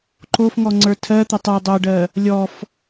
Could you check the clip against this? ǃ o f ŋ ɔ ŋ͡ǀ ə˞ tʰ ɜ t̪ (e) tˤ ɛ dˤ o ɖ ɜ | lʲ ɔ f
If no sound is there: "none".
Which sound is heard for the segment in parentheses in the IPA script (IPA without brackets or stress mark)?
ɛ